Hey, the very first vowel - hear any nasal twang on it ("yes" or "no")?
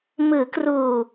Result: no